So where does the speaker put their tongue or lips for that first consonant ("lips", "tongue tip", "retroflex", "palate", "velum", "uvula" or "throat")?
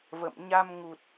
lips